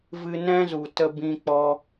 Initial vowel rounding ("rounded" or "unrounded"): unrounded